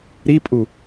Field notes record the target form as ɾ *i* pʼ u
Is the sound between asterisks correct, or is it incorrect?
correct